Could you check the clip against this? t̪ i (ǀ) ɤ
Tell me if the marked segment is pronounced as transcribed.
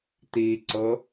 yes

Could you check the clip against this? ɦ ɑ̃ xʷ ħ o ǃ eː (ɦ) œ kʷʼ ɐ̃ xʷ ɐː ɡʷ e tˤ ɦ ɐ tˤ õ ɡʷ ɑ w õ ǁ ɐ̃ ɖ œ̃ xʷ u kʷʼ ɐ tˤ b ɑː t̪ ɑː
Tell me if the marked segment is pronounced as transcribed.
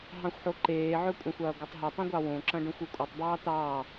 no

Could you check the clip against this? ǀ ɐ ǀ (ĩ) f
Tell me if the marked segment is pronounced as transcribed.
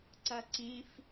yes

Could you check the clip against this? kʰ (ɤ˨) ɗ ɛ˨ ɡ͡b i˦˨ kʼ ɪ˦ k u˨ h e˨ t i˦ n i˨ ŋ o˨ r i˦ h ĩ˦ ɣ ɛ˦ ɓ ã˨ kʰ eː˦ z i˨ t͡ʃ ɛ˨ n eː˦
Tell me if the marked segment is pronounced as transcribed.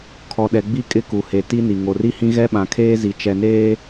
no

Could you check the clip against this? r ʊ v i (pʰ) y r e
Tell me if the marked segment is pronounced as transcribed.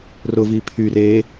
yes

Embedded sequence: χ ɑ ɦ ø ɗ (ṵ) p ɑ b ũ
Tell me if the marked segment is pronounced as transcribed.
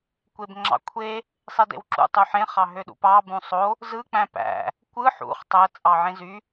yes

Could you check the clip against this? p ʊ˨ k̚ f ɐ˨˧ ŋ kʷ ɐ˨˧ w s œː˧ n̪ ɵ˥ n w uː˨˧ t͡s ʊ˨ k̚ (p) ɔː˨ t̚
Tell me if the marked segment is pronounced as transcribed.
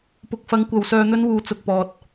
yes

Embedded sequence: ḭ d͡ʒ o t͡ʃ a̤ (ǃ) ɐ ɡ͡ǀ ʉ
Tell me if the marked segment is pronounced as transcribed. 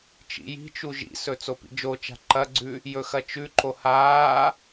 yes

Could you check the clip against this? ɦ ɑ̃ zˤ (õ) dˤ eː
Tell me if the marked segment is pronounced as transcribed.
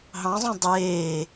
yes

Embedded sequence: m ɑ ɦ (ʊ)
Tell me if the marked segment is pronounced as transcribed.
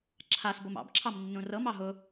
yes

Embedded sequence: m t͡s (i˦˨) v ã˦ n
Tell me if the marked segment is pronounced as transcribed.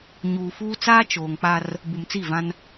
yes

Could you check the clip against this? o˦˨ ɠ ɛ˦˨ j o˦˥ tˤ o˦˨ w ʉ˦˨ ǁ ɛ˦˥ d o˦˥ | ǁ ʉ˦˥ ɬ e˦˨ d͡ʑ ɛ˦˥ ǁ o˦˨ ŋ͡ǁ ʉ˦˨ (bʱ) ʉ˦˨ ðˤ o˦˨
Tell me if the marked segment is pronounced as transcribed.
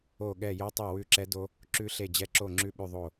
no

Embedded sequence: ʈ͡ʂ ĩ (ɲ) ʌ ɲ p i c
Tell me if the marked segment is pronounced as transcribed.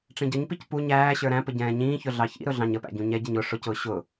no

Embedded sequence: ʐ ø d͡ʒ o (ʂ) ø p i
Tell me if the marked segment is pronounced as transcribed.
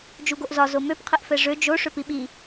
yes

